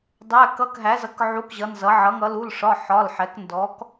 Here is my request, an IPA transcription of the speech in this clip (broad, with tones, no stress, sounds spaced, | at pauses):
dˤ æ˧˥˧ k ʌ˧˥˧ k ɦ æ˨˥ z ʌ˨˥ k ʕ u˧˥˧ k ʑ ʌ˨˥ n z ʌ˨˥ ʕ ʌ˨˥ ŋ ʌ˨˥ l u˧˥˧ l ʂ ɒ˧˥˧ ħ ɒ˧˥˧ l ħ ɛ˨˥ k n d ɔ˨˥ k